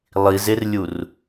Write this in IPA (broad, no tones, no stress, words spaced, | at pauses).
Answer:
lˠizerlʲur